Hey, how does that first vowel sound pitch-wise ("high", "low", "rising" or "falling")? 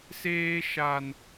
high